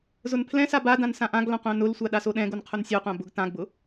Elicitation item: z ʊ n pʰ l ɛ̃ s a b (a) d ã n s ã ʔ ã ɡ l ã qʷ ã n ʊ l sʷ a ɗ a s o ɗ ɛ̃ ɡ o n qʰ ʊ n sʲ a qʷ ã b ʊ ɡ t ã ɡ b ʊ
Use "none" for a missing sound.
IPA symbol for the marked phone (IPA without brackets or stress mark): a